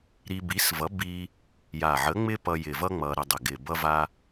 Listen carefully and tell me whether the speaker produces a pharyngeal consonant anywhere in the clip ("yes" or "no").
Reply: yes